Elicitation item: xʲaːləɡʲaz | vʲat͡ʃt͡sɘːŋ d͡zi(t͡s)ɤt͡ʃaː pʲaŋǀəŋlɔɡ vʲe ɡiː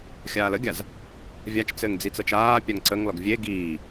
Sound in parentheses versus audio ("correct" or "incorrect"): correct